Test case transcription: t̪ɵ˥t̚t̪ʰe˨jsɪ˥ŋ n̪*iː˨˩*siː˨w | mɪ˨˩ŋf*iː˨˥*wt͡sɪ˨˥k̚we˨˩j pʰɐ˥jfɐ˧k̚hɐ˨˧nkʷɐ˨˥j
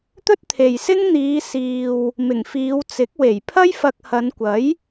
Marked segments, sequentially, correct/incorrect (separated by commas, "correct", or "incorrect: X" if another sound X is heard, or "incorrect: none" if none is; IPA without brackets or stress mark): incorrect: iː˨˧, incorrect: iː˨˧